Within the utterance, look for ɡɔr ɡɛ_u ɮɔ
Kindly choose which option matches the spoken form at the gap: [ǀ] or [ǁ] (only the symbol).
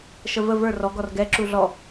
ǁ